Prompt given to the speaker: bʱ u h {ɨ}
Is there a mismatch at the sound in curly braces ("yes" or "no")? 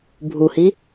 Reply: yes